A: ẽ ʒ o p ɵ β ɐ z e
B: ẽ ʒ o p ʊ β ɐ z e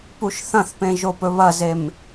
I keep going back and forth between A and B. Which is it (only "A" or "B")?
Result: A